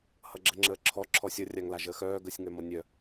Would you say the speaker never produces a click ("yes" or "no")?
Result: no